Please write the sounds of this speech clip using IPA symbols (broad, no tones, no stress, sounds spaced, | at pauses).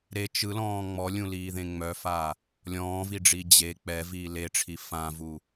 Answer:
ɾ e t͡ʃ ɯ l ɔ̃ː ŋ͡m ɔ lʲ ũ l iː ð ẽ ŋ͡m œ f a | lʲ ɔ̃ː v i ɖ͡ʐ i d͡ʑ e k͡p ɛ v iː l e ʈ͡ʂʰ i f ã v u